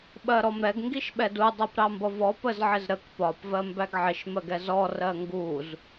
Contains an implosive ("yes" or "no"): yes